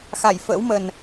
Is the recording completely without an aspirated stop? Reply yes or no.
yes